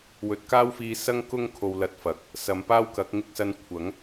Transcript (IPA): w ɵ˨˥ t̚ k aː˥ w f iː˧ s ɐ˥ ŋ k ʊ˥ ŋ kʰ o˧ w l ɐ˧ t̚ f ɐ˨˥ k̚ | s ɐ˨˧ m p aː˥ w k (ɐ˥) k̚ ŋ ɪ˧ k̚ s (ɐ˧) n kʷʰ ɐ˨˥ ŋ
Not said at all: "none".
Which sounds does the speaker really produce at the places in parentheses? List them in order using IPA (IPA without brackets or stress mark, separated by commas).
ɐ˨˥, ɐ˧